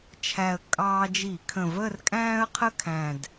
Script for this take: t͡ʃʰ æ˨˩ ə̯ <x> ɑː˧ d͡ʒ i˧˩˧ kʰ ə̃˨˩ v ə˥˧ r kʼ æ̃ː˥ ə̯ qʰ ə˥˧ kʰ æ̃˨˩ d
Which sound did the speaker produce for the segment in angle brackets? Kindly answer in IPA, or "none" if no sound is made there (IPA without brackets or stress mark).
kʼ